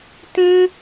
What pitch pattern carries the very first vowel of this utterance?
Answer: high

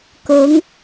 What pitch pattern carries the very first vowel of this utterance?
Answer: rising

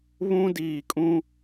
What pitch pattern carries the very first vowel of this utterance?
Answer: high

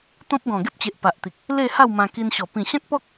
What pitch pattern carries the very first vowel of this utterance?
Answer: high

